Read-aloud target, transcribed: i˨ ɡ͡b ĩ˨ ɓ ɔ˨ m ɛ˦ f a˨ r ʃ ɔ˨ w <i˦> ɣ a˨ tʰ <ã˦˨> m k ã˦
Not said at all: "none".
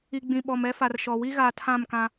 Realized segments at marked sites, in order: i˦, ã˦˨

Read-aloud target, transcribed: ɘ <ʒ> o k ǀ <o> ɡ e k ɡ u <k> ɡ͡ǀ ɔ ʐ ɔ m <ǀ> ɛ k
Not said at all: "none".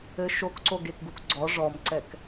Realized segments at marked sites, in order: ʃ, o, k, ǀ

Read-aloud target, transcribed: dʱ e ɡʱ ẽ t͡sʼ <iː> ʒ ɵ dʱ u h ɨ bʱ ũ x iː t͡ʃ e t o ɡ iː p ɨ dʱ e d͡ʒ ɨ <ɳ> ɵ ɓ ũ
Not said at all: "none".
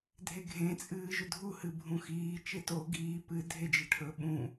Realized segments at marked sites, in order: ɨː, ʈʰ

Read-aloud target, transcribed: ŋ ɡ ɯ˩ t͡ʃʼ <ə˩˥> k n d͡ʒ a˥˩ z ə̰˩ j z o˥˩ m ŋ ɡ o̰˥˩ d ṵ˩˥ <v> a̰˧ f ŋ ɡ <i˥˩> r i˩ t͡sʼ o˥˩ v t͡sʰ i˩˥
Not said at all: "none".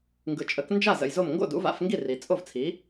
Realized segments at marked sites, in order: ə˩˥, v, i˥˩

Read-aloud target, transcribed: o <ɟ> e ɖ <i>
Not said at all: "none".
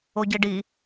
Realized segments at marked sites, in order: ɟ, i

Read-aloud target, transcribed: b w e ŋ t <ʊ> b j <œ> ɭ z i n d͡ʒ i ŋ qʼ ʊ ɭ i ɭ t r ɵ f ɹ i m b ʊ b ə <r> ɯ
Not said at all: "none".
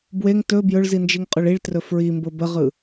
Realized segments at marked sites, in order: ɵ, ɵ, ʁ

